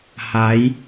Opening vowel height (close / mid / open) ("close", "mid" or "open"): open